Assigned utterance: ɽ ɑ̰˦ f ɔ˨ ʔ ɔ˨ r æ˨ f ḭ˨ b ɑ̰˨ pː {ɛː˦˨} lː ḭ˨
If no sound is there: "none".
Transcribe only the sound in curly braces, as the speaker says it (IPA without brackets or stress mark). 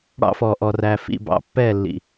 ɛː˦˨